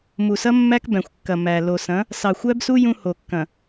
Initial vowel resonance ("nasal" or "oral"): oral